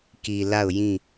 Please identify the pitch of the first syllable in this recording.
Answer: low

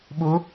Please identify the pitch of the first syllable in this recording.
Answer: rising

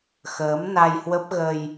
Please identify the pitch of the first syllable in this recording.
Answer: rising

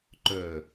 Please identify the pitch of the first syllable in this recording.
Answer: low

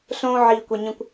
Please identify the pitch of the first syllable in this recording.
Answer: high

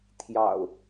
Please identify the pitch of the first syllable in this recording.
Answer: low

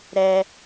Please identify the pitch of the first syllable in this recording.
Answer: high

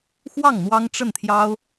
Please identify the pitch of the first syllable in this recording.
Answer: falling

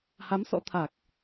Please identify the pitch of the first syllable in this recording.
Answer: rising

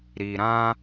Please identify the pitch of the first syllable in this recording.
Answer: low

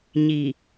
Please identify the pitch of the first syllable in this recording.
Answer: low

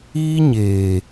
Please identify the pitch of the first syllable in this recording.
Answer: high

